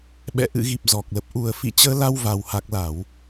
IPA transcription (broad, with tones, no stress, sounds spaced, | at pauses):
ɓ ɛ̰˧˨ ʔ ɨ̰˧˨ ɣ i˨˩ p̚ z ɔ˨˩ k̚ l ə˨˩ p̚ ʔ u˨˩ ə̯ f ḭ˧˨ t͡ɕ əː˧ l a˧ w v a˨˩ w h a˨˩ k̚ l a˧˩˨ w